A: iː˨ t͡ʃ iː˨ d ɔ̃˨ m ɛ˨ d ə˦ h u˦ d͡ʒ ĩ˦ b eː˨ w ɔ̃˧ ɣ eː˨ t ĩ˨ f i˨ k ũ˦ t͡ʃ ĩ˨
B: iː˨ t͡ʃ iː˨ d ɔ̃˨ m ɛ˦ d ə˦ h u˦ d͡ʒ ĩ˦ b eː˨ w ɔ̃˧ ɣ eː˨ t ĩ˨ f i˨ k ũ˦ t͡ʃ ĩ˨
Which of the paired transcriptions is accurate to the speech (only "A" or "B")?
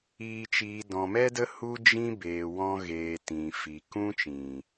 B